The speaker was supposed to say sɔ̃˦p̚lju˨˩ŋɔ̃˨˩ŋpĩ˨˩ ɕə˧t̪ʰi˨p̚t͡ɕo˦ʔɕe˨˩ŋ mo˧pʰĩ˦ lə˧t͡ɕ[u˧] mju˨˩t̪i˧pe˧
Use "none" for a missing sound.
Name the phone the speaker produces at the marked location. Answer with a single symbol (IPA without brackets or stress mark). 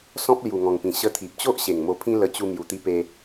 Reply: u˧